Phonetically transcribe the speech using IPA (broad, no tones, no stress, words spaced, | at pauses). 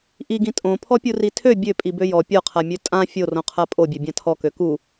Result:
ʔiɡĩ tʼõ pʰɔpʲuritʰø bʲøpʼi bøjɔ pʲɔqʰamʲø tʼã fʲorõqʰa pʼobʲø bʲãtʰɔkø ku